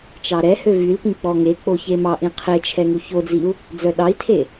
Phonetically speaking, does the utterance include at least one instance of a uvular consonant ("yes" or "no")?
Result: yes